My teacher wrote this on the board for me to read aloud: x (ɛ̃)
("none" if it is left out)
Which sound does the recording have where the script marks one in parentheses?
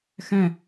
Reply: ɛ̃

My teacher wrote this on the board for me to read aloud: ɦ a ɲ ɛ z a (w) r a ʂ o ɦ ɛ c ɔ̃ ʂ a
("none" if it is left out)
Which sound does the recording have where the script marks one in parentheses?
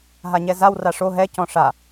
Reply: w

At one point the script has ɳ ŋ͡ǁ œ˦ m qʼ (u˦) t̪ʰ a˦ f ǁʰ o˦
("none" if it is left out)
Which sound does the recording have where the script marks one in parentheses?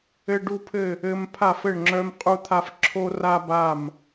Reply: u˦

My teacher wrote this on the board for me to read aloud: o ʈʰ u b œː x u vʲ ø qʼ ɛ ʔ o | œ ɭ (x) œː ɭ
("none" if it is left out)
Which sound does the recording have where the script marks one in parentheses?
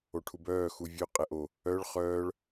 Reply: χ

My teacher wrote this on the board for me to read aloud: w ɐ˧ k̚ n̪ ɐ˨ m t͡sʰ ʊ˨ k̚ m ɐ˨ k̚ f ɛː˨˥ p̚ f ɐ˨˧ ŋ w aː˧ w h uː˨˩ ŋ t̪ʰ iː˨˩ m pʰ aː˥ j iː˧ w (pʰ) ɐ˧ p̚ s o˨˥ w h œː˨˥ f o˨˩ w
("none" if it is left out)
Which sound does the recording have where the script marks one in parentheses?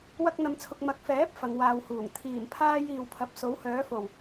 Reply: pʰ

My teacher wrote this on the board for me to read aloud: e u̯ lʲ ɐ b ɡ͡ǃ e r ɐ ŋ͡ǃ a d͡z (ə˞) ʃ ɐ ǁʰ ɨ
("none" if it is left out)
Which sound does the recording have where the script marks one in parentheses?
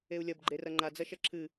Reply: ɐ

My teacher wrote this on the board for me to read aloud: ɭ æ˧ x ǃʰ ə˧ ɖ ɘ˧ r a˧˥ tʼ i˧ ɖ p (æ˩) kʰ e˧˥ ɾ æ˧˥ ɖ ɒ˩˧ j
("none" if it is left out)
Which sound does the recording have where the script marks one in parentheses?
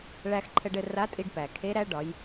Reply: æ˩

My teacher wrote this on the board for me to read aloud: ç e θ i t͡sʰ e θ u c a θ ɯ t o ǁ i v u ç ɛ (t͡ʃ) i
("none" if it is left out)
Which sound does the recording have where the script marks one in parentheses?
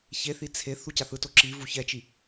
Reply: t͡ʃ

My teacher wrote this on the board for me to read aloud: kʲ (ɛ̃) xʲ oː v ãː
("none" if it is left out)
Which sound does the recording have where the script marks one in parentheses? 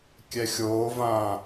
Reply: ɛ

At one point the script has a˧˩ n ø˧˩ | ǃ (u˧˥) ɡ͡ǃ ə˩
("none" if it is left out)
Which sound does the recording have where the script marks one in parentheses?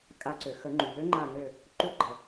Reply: u˧˥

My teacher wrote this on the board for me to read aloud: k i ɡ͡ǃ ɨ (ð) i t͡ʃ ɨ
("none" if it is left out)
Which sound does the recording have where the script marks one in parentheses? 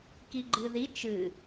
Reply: ð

